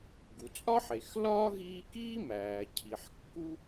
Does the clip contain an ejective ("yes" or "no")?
yes